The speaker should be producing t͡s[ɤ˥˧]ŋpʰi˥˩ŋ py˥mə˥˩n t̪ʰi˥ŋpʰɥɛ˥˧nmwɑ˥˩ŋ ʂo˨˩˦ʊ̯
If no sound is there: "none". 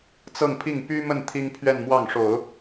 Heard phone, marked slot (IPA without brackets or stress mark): ɤ˥˧